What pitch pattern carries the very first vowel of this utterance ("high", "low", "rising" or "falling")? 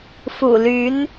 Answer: low